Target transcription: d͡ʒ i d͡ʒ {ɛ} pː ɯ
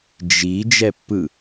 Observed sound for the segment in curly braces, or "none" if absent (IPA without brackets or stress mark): ɛ